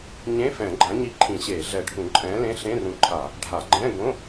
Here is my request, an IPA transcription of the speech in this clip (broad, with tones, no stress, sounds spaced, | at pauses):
ɲ ẽ˧˥˧ f ɛ̃˧˩˧ ɡ͡ǃ ã˨˥ ɲ i˧˥˧ ǃʰ ĩ˧˩˧ ɕ eː˧˩˧ ɮ ɛ˧˩˧ ɖʱ ũ˧˩˧ ǃʼ ɛ̃ː˨˥ l ẽ˧˥˧ ɬ ẽ˧˥˧ r ũ˨˥ ǃʰ a˧˩˧ | ɖʱ a˧˩˧ ɡ͡ǃ ɛ̃˧˥˧ ɡ õ˧˥˧